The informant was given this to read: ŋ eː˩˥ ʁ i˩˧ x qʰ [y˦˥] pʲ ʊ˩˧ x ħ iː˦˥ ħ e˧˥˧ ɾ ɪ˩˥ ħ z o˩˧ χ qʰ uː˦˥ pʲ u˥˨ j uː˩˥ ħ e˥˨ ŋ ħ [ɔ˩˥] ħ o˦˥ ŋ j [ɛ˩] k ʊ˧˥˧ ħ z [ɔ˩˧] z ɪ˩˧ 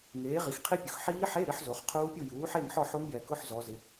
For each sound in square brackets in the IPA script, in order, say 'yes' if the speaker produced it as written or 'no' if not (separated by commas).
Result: no, no, yes, yes